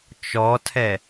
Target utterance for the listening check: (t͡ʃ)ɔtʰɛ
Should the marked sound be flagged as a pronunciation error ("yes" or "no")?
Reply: no